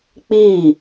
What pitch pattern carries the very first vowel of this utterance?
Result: falling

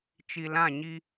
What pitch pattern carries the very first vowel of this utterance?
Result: low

